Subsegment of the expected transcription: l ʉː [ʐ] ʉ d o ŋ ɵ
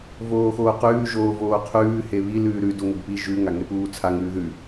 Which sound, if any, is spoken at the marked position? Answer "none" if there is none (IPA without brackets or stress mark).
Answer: ɾ